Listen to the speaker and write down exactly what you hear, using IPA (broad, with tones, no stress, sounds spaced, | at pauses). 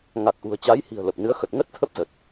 ŋ a˨˩ k̚ ʔ ṳ˨˩ ə̯ t͡ɕ a˨˦ j h i̤˨˩ ə̯ l ə˨˩ p̚ n ɨ˨˦ ə̯ x ə˨˩ t̚ ŋ ə˦˥ t̚ t̪ʰ ə˦˥ p̚ z ə˨˩ t̚